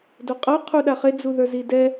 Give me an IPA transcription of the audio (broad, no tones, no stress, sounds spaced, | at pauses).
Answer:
d o qʼ ʌ qʰ u ɗ a χ e d͡z u ð ə˞ z i d ɛ